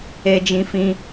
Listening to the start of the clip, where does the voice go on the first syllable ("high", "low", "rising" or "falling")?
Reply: high